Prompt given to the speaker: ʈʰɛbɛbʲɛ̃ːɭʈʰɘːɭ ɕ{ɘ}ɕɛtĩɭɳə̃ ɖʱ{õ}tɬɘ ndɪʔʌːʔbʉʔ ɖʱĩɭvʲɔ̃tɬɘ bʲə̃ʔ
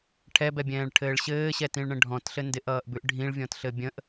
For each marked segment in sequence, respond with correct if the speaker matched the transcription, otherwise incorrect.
incorrect, incorrect

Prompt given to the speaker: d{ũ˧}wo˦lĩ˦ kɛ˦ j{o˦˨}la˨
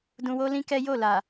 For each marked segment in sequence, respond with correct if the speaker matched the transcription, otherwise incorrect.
correct, correct

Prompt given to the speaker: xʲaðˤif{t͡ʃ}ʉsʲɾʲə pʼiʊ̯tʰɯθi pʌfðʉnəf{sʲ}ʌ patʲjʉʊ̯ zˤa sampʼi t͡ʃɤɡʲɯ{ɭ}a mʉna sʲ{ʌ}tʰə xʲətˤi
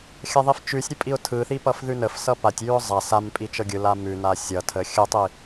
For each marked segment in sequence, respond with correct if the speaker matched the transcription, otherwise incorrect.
correct, incorrect, incorrect, correct

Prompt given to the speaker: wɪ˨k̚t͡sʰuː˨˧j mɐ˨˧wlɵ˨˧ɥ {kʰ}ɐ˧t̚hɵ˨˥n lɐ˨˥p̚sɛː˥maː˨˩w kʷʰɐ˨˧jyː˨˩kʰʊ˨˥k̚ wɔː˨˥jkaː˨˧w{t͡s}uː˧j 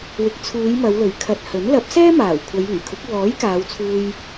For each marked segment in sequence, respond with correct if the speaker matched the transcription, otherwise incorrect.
correct, incorrect

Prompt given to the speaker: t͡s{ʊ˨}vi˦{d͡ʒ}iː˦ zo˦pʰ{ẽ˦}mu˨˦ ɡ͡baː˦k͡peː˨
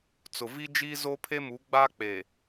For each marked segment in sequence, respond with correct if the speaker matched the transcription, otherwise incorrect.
correct, correct, incorrect

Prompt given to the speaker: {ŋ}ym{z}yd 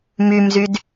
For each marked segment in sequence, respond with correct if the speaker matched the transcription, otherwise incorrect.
incorrect, correct

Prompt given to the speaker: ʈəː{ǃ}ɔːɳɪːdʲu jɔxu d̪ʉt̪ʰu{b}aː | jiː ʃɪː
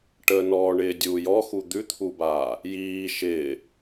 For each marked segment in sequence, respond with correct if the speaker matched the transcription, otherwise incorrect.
incorrect, correct

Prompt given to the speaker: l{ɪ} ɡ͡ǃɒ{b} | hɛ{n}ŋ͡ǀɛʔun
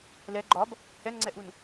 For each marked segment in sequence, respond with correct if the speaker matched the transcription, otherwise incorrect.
incorrect, correct, correct

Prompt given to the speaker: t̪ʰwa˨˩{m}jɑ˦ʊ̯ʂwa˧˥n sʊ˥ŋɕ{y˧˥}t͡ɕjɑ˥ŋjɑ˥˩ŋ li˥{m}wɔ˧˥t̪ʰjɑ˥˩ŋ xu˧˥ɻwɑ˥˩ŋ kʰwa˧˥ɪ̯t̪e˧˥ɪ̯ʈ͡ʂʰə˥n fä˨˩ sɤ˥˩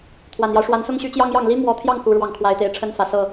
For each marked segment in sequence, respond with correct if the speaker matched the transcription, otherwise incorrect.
incorrect, correct, correct

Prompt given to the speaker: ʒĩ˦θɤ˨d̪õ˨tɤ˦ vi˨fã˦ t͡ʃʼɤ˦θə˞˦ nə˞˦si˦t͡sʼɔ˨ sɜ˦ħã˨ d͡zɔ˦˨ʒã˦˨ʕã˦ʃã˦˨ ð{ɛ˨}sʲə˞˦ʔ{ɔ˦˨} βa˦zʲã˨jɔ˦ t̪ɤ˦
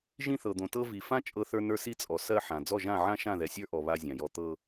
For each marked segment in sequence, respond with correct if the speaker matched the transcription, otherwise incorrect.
correct, incorrect

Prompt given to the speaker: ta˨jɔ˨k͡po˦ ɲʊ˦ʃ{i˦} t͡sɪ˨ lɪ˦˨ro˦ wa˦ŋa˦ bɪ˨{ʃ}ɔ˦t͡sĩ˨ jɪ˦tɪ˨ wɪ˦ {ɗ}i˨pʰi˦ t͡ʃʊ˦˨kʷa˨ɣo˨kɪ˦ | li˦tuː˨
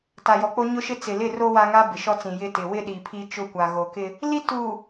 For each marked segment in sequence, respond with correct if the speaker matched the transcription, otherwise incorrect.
incorrect, correct, correct

